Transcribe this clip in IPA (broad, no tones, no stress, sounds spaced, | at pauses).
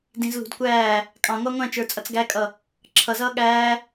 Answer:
d ĩ z l ṳ d kʷ æː | kʼ ɑ̃ ŋʷ ɑ ŋʷ æ̃ t͡ʃ ə˞ t͡sʼ ʌ t͡s ɡ æ kʼ ʌ | ǁʰ ʌ z ʌː ɠ æː